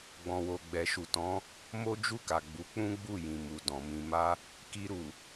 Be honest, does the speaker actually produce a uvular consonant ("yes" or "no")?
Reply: no